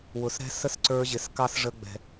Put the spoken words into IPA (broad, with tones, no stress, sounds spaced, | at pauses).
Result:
w ʊ˨ s ɾ ɛ̤˦ s ə˦ s ǀ ə˞˧ ʑ ɪ˨ s k ɑ˦ s ʐ ə˧ ɡ͡b ɛ̤˨